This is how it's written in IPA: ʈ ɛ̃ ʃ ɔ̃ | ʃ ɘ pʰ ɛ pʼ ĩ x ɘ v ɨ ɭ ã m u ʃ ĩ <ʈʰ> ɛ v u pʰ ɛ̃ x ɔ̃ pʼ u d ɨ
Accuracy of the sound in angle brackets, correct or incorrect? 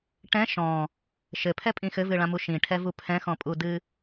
correct